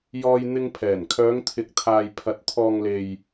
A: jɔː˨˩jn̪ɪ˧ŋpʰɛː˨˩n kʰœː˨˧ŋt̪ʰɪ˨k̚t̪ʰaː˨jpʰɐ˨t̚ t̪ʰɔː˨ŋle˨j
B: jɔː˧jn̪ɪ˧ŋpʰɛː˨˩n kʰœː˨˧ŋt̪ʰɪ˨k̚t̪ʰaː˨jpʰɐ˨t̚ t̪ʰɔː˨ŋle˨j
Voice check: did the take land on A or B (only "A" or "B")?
B